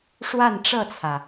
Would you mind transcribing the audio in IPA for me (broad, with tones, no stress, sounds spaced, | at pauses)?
ʂ w a˥˧ n ʈ͡ʂ ɤ˥˩ t͡sʰ ä˩